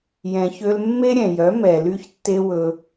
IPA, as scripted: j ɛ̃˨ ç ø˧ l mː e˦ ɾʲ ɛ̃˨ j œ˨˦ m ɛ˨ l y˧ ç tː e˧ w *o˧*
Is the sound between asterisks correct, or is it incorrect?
incorrect